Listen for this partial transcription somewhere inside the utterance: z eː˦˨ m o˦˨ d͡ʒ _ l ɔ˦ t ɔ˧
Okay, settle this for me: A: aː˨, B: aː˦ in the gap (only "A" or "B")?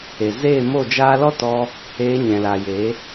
B